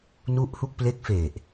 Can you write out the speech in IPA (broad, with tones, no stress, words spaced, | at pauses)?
nu˦˥ʔhu˦˥k̚ple˦˥k̚ fe˨˩ʔ